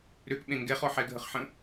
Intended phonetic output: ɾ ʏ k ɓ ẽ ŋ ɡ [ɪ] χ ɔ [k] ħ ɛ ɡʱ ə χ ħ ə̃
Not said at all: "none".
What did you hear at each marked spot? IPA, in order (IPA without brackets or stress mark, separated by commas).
ɛ, none